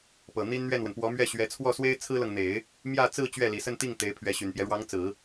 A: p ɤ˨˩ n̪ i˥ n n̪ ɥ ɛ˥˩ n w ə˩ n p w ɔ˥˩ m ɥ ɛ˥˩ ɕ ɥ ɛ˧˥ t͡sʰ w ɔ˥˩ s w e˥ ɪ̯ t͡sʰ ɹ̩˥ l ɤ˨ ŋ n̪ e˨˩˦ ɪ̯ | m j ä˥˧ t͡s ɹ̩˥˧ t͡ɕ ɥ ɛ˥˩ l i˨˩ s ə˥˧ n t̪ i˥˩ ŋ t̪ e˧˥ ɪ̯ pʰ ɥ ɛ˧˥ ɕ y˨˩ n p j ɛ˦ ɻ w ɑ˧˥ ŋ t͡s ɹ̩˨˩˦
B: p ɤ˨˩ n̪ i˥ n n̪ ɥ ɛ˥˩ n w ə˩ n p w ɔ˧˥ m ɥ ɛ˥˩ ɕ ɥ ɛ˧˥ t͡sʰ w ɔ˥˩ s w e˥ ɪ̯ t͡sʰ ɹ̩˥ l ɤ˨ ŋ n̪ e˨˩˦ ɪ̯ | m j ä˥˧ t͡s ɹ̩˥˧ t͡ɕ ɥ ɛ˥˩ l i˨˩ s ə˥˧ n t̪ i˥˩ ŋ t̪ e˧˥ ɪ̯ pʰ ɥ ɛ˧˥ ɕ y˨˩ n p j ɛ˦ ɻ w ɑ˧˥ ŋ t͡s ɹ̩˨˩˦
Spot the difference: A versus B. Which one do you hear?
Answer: B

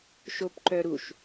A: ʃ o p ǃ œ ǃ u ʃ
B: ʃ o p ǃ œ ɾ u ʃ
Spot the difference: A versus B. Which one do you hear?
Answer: B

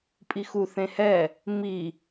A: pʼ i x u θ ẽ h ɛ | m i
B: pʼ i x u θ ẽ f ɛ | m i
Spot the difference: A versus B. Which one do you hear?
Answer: A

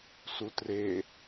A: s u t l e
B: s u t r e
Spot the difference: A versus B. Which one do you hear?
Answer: B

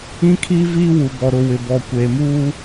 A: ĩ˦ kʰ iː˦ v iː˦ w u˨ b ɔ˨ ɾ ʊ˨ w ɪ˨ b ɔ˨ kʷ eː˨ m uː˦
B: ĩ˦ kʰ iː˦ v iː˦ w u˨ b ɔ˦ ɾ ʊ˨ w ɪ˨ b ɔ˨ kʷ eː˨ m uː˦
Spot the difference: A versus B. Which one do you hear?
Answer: A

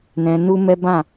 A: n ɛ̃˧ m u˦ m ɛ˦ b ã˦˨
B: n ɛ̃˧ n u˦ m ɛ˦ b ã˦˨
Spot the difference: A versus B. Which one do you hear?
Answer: B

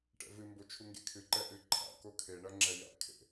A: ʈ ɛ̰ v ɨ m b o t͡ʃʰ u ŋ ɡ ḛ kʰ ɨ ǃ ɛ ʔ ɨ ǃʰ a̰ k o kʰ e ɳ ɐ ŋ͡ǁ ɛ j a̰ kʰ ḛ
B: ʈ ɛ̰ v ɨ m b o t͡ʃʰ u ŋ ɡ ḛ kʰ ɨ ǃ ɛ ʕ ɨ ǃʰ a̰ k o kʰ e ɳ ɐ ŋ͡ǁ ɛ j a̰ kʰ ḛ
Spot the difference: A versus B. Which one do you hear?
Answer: A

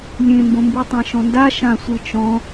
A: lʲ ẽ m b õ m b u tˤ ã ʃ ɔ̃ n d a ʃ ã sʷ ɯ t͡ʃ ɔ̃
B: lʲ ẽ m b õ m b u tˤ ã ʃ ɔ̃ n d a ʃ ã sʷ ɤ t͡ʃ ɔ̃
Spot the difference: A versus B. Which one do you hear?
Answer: A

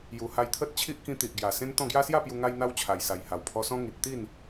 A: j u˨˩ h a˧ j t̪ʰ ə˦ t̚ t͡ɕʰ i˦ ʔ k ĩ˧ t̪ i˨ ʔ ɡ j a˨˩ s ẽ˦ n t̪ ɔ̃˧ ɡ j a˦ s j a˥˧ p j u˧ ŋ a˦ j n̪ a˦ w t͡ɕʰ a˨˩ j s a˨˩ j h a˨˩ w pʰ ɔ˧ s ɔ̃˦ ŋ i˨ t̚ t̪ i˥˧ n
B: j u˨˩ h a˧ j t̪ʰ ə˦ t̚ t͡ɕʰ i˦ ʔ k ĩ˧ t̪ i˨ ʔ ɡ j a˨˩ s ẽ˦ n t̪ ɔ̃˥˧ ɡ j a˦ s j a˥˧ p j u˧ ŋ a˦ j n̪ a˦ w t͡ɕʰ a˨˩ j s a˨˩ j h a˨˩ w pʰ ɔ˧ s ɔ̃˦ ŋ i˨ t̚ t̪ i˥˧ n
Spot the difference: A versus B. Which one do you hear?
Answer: B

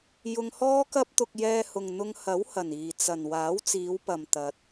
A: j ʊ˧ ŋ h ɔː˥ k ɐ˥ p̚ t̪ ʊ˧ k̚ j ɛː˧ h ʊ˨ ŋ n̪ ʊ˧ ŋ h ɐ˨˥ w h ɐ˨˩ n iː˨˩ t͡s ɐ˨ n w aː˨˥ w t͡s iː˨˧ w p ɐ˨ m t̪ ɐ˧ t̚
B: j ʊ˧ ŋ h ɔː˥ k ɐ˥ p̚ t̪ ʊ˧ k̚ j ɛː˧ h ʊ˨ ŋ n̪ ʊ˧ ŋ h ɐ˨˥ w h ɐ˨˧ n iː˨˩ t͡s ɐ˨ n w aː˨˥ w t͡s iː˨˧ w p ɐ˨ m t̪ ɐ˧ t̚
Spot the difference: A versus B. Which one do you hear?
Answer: A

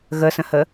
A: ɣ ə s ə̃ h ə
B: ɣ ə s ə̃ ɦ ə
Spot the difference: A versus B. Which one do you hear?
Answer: A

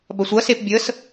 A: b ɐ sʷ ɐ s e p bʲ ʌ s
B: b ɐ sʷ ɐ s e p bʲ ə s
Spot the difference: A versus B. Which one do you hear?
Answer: B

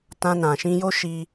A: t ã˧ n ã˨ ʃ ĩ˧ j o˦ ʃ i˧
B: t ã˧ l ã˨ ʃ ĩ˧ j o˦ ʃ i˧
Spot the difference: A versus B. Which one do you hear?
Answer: A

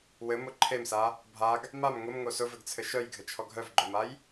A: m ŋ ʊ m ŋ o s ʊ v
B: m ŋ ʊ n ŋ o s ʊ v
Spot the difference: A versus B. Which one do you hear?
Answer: A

